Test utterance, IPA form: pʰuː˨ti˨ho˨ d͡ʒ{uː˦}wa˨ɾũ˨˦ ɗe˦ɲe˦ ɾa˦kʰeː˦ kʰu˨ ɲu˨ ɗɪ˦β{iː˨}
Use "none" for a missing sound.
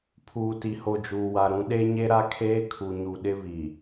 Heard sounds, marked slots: uː˨, iː˨

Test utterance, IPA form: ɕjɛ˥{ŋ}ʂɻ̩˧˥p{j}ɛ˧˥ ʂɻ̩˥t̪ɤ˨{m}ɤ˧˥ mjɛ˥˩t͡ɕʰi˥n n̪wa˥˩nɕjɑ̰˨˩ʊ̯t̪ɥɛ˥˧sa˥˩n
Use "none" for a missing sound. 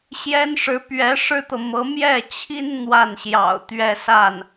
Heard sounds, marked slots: n, ɥ, m

